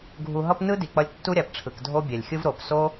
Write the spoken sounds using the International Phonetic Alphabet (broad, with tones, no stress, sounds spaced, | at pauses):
ɡʱ u˨ ɦ ʌ˧ p n ɯ˦ d i˨ k͡p ʌ˧ lʲ tː u˦ ɾʲ a˨ p ʈ͡ʂʰ ɯ˨ k dʱ o˦ bʲ ɛ˨ lʲ xʲ ɯ˦ v ɾ o˨ p s o˦